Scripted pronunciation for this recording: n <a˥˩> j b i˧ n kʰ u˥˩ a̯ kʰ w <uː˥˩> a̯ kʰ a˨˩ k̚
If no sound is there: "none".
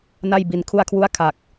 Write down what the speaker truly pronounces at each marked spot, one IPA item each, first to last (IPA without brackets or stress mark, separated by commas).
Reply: a˥˩, u˥˩